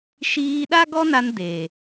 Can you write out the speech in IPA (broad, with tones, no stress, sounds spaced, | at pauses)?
ʃ iː˧ ɗ a˦ ɡ ɔ˦ n a˧ n d e˨